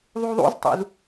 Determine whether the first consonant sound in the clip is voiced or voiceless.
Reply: voiced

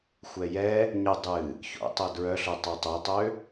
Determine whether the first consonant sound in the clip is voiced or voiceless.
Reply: voiceless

